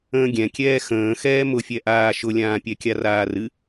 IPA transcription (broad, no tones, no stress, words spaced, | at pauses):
ə̃ːɡʲɛ̃kʲɛː xə̃ː xɛːmʊfʲɛʔaː ʃʊlʲãːpʲɛkʲa raːrɨ